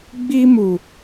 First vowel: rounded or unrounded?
unrounded